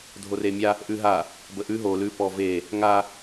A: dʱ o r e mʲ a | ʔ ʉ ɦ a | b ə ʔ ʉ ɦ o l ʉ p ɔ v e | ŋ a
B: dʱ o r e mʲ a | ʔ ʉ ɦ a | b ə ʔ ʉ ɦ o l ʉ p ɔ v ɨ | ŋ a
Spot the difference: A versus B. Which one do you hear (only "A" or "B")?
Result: A